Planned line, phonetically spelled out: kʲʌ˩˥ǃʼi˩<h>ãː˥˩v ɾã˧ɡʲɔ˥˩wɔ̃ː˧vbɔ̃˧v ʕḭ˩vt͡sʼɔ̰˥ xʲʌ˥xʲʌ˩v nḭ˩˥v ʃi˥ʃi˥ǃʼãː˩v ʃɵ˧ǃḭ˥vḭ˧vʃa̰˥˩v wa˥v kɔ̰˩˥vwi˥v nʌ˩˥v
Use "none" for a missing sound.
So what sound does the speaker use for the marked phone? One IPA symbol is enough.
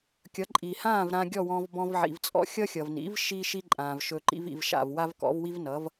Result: h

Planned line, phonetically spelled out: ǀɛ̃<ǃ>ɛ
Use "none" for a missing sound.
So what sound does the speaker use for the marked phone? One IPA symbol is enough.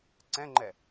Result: ŋ͡ǃ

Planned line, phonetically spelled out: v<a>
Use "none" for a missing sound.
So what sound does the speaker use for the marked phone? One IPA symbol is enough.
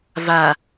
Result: a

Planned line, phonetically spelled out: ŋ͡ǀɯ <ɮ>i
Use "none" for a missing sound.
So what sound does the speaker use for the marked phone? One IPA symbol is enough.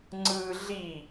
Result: ɮ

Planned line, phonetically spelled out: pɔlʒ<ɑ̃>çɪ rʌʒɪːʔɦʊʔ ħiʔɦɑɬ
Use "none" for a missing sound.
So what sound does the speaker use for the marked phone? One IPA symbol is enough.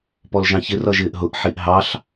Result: ɑ̃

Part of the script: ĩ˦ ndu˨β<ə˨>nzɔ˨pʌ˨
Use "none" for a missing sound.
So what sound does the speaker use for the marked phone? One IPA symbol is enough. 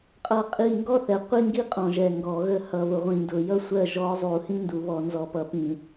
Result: ɔ˨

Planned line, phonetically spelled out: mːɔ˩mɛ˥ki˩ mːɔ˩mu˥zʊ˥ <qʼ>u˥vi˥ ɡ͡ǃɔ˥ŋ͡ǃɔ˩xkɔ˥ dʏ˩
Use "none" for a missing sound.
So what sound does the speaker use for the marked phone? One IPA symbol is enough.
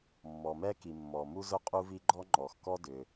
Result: qʼ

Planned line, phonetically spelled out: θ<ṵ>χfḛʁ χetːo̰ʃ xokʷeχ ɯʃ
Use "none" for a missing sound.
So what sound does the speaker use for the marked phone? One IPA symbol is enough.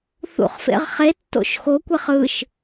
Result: ṵ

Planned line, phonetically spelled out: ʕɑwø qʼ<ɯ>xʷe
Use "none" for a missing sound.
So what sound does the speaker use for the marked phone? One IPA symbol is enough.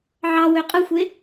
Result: ɯ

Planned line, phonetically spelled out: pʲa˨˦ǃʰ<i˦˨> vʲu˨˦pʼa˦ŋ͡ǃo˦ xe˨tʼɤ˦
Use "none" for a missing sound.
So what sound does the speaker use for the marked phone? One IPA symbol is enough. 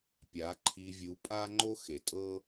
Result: i˧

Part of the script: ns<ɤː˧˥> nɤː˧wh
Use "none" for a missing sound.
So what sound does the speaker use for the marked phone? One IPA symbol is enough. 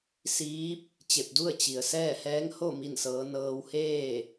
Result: ɤː˧˥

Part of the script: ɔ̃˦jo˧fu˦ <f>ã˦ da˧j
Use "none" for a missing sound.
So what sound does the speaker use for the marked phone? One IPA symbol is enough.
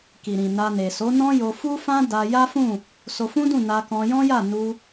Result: f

